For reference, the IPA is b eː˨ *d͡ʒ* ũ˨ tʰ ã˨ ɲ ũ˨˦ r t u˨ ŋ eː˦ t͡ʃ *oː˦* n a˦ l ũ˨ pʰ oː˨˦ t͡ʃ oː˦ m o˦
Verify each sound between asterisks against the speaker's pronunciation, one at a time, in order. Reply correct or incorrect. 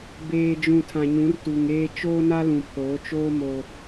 correct, correct

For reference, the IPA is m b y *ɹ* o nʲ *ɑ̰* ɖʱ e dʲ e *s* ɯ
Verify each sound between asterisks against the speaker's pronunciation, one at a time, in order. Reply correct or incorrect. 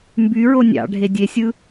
correct, correct, incorrect: sʲ

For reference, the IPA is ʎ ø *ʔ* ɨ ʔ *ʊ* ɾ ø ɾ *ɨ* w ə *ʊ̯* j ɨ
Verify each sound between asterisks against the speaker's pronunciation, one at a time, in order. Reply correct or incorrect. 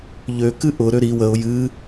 incorrect: k, correct, incorrect: i, correct

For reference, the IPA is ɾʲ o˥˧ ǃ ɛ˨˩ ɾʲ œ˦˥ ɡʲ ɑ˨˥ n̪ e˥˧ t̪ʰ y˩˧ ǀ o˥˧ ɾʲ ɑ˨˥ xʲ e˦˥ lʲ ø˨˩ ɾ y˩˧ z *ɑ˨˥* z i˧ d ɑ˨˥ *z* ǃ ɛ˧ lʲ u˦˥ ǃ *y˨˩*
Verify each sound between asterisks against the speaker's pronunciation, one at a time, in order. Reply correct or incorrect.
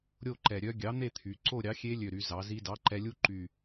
incorrect: ɑ˩˧, incorrect: none, correct

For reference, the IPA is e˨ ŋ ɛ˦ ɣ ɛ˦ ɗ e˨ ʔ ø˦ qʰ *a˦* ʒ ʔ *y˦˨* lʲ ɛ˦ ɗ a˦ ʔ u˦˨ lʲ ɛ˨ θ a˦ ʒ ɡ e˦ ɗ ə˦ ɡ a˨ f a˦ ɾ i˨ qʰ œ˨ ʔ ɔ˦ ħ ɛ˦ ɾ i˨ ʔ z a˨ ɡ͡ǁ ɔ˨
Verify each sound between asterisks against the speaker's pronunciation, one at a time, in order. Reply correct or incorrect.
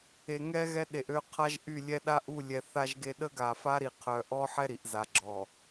correct, correct

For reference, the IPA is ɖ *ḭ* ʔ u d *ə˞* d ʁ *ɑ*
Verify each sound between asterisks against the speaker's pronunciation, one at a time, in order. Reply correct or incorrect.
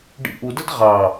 correct, incorrect: ə, correct

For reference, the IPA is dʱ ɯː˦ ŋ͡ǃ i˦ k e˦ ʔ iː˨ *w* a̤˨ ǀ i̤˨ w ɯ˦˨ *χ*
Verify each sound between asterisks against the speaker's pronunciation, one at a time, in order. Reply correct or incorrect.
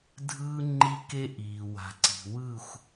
correct, incorrect: xʷ

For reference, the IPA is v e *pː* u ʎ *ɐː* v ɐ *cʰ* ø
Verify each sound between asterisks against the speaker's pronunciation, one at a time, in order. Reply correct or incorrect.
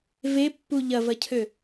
correct, incorrect: ɐ, correct

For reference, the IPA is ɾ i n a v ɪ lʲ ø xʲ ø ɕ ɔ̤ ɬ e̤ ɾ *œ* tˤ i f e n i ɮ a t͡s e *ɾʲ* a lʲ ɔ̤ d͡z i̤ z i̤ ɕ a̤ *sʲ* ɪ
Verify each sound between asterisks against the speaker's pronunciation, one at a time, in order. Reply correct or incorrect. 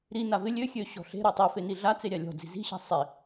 correct, correct, incorrect: sˤ

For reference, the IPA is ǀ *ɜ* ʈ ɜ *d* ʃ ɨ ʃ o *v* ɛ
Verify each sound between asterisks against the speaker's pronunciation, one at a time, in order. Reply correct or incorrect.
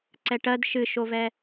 incorrect: ɛ, correct, correct

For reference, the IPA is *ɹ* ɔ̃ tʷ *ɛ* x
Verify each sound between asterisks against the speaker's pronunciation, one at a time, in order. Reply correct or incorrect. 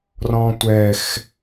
incorrect: r, correct

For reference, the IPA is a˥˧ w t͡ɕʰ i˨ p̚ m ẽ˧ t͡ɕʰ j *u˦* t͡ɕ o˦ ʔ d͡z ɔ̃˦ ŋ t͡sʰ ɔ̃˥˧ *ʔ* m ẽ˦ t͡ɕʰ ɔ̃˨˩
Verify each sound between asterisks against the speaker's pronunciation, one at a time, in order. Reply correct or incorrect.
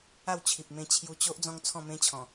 incorrect: u˧, incorrect: none

